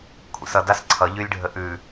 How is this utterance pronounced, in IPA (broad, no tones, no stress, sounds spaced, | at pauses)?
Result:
kʷʰ ḭ s ʌ d a s ǀʰ ʌ ʎ y lʲ ɖʱ ə ʔ ʉ